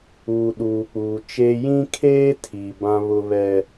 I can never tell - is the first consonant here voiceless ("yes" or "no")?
no